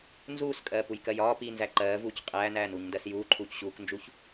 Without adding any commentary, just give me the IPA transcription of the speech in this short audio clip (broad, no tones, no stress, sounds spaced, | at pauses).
n z uː s kʼ ɜː p u j k ɜ j ɒː p iː n z æ ǃ ɜː v uː c qʼ æː n æː n uː ɲ n d ɜ s j uː ǃʰ uː c ɕ uː k n d͡ʒ u ç